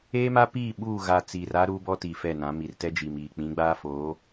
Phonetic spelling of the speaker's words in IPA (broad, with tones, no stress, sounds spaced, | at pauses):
eː˦ m a˦ p iː˦˨ ɓ uː˦˨ ɣ a˨ t͡s iː˨ r a˦ ɾ uː˦ b ɔ˦ t iː˨ f ɛ˦˨ n ã˨˦ m i˨ r t ɛ˦ d͡ʒ iː˨ m iː˨ k͡p ĩ˨˦ ɡ͡b aː˦ f oː˨˦